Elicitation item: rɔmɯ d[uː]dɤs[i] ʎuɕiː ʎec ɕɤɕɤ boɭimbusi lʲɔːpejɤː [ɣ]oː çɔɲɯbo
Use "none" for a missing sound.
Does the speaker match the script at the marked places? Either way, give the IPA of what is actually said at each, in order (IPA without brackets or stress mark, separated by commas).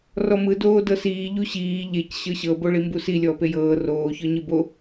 oː, iː, r